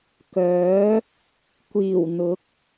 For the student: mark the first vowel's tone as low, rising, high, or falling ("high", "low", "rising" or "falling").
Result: rising